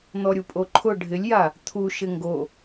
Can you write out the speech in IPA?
n̪ ɔ ɾʲ u pʼ o ǃʰ ʊ ɖʱ ɪ lʲ j a | t̪ʰ u ʃ ɪ ŋ ɡ o

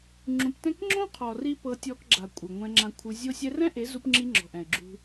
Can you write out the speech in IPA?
ŋ͡ǁ ũ˧ p t ɛ̃˦ k ŋ͡ǁ õ˦ qʰ ɔ˨ r i˦ p ɤ˧ tʲ ɔ˧ k ɡ͡ǁ a˨ kʷʼ ɯ˨ ŋʷ ɛ̃˧ ŋ͡ǁ ã˧ kʷʰ ɯ˧ zʲ o˧ sʲ ɛ˧ r ɛ̃˦ ʔ e˨˦ z u˧ p ŋ͡ǁ i˧ ŋ͡ǁ ɔ̤˨ ʔ ɛ̃˨ ɪ̯ ɡ͡ǁ ṳ˧

